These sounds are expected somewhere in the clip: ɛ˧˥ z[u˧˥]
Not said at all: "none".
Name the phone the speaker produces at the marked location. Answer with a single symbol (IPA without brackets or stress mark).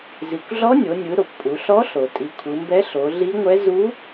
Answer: u˧˥